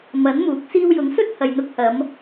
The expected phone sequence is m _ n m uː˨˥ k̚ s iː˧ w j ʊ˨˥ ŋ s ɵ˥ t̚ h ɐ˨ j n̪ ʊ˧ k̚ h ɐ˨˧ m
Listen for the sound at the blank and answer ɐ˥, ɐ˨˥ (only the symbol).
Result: ɐ˨˥